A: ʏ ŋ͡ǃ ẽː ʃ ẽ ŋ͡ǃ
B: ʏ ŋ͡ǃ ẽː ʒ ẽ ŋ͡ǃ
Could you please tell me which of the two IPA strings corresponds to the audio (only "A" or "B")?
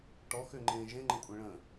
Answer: B